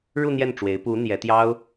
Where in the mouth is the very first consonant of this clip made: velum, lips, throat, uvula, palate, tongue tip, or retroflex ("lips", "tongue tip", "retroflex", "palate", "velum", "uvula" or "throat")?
retroflex